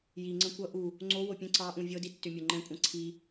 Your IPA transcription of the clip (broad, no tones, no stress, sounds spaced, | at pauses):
j i ŋ͡ǀ ə̃ kʷ ʌ ʔ u | ŋ͡ǀ o w o pʲ ə̃ ǀ ɑ ʔ ũ vʲ ɤ d i tː ʏ mʲ o ŋ͡ǃ ɛ̃ kʷʼ ɛ̃ ǀʰ i